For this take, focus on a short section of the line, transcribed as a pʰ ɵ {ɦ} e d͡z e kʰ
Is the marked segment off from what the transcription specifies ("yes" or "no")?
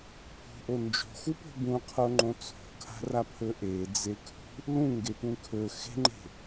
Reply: yes